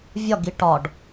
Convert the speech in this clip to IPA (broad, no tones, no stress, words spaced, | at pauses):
vʲɒɡi ʈɒɖ